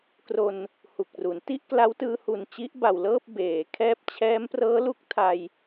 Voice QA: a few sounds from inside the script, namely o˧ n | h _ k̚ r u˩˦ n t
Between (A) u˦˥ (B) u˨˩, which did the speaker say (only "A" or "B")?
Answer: B